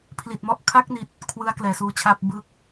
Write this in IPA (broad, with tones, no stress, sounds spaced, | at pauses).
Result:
pʰ l i˨˩ t̚ m ɔ˦˥ ʔ kʰ a˦˥ k̚ n i˨˩ t̚ | kʰ w ɯ˦˥ a̯ k l ɛː˨˩ s uː˧ t͡ɕʰ aː˥˩ p̚ b ɯ˥˩ k̚